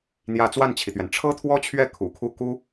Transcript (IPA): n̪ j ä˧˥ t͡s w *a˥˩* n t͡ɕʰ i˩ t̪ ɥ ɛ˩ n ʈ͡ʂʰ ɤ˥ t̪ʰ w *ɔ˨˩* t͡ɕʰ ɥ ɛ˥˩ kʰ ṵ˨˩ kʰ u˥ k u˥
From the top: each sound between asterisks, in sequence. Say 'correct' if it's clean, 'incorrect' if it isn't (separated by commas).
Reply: correct, incorrect